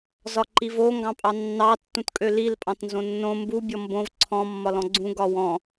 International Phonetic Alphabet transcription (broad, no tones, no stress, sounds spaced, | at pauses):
z ɒ ǃ i v o ŋ ɡ ɑ̃ pʼ ɑ nː ɑ tː ũ t kʼ ø l i l pʼ ɑ̃ t n z õ nː õ m b u bʲ ɔ m b õ v ǀʰ ɔ̃ mː ɒ l ɔ̃ ɡ͡ǀ ũ ɡ ɒ w ɔ̃